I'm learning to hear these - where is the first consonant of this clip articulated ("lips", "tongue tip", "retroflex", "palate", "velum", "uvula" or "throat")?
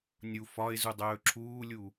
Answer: tongue tip